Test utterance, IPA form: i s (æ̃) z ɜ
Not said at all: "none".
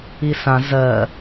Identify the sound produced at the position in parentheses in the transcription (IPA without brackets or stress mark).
ã